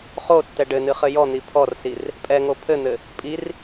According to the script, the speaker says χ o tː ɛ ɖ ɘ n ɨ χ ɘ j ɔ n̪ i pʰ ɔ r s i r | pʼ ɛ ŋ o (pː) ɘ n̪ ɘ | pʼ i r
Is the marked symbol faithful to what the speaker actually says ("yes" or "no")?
no